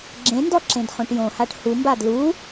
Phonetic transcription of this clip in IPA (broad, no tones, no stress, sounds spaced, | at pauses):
ɡ͡ǁ ẽ n d ɔ ǁ ẽ d χ õ ʈ j õ h a ʈ h u m b a d l u